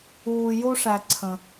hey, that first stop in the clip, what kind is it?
click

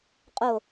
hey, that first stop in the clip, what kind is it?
ejective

